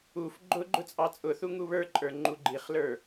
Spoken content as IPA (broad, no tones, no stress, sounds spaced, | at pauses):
u f ɡ͡ǃ ʊ ɡ͡ǃ ʊ t͡sʼ ɑ t͡sʼ ʊ θ u ŋ u β ə˞ ǃʼ ə˞ ŋ͡ǃ u ɡ͡ǃ i χ l ə˞